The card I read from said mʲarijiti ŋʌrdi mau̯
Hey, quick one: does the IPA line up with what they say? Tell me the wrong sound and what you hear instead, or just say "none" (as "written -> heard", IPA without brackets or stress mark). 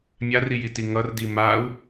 none